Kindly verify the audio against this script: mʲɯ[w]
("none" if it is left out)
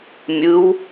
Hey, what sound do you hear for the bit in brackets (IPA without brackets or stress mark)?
w